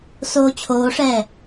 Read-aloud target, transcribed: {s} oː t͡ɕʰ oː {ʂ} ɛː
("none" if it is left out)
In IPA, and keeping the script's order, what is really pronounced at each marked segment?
s, ʂ

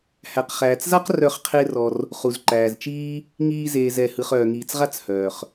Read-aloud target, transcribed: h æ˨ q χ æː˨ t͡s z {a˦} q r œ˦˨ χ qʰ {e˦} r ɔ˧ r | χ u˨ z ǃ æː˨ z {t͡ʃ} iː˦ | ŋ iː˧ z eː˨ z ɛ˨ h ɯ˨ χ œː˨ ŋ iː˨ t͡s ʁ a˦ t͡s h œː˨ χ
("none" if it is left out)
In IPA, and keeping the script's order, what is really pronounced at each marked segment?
a˦, e˦, t͡ʃ

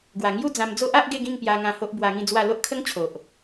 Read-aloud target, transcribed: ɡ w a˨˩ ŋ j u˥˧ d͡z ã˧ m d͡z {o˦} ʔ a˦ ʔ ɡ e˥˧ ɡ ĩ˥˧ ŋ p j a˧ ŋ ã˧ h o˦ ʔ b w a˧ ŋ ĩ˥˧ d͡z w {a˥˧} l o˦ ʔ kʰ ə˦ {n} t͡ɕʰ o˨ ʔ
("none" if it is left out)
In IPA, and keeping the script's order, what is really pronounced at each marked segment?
o˦, a˥˧, ŋ

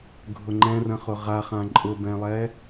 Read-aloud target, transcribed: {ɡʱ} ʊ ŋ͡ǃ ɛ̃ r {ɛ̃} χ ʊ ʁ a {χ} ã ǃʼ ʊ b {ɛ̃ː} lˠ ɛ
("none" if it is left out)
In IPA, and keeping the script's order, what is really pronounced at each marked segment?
ɡʱ, ə̃, χ, ɛ̃

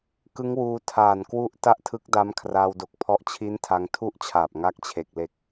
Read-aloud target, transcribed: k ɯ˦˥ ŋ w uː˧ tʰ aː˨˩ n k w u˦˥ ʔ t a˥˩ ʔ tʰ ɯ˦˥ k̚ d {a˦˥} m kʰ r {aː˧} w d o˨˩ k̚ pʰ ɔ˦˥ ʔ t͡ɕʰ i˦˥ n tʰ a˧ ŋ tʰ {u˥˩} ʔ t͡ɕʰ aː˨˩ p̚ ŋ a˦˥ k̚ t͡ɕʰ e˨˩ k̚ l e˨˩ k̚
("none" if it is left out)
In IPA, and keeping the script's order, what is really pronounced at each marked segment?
a˦˥, aː˧, u˥˩

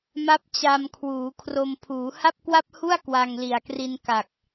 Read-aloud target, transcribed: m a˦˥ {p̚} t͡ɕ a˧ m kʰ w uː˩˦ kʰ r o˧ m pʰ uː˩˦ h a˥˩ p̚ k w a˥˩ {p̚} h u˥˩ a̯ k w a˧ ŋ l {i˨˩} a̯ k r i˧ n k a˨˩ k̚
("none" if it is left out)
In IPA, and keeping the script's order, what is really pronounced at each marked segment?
p̚, p̚, i˨˩

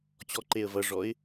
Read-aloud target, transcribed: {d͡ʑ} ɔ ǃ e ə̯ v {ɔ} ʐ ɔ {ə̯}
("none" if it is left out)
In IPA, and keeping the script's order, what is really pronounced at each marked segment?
t͡ɕ, ʌ, ɪ̯

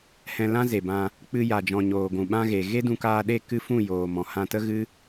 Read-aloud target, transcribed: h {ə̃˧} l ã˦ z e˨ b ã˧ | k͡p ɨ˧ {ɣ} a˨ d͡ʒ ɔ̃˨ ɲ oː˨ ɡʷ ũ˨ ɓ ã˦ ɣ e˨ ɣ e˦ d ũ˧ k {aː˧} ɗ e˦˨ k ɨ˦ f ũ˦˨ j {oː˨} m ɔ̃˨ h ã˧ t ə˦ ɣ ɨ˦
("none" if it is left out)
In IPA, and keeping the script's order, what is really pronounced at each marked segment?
ɛ̃˧, j, aː˧, oː˨

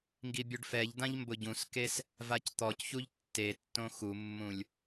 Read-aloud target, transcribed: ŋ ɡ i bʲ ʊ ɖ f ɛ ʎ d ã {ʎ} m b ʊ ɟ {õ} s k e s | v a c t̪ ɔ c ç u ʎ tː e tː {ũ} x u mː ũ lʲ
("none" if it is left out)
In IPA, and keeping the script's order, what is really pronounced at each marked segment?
ʎ, ũ, õ

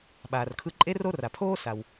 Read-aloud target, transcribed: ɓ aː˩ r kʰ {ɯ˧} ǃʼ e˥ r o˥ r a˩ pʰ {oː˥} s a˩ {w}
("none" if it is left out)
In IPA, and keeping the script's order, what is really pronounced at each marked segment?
ɯ˧, oː˥, w

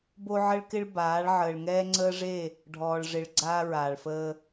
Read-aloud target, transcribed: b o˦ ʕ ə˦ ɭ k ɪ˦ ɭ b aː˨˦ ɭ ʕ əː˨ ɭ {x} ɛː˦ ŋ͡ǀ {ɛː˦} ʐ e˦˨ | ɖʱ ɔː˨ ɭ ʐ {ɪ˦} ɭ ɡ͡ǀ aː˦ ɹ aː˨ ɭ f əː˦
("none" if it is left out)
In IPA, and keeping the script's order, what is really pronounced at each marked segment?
ŋ, əː˦, ɪ˨

